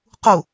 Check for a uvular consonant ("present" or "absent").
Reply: present